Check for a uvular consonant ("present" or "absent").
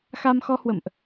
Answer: absent